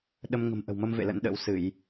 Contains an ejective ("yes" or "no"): no